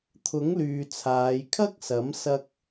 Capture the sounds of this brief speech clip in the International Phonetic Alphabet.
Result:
t̪ʰ ʊ˨˥ ŋ l yː˨ t͡sʰ aː˨˧ j kʰ ɐ˥ k̚ s ɐ˨˥ m s ɐ˥ k̚

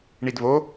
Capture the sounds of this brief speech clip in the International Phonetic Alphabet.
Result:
ɳ i d β o

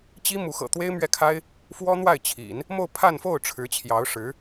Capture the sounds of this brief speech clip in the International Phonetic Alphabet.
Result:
t͡ɕ i˥ m u˧˥ x ɤ̰˨˩ t̪ w e˥ ɪ̯ m ɥ ɛ˥˩ kʰ a˥ ɪ̯ | f w ɔ˥ n̪ w a˥˩ ɪ̯ t͡ɕʰ ḭ˨˩˦ n | m o˥˧ ʊ̯ pʰ a˥˧ n f o˥˩ ʊ̯ ʈ͡ʂʰ ɻ̩˧˥ t͡ɕʰ j ɑ˧˥ ʊ̯ ʂ ɻ̩˧˥

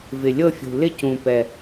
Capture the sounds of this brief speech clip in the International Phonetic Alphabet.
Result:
v ɪ˨˩ lʲ ɤ˥˧ fʲ ṳ˨˩ l ɪ˥˧ c ũ˨˩ p ɛ˨˩

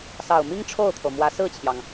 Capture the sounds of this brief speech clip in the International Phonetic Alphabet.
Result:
s ɑ˨˩ ʊ̯ m i˥ ŋ ʈ͡ʂʰ o˥˩ ʊ̯ t̪ʰ o˩ ʊ̯ m w ä˧˥ s ɹ̩˥˩ t͡ɕʰ j ɑ˩ ŋ

